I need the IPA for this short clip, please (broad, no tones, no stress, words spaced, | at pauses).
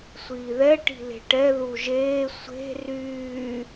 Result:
sʷiːðɛ ʈi̤le̤ʈɛ ðuʒeː sʷe̤ ryː